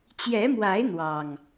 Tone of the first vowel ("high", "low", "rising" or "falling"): rising